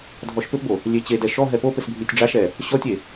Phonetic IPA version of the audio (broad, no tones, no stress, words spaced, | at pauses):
dʱɔʃpɘpbo | lʲet͡ɕedɛ ʃɔɦɛ pop ɘsbʱitʲɖ͡ʐaʃɛ | ɕɔtʲe